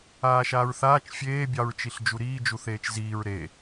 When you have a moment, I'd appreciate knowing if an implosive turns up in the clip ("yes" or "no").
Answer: no